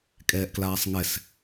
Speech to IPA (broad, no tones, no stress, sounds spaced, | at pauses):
kʼ ɛː ʔ k l aː sˤ ŋ ɛ s